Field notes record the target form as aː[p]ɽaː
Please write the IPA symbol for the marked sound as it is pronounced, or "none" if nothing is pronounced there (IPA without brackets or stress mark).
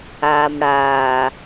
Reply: m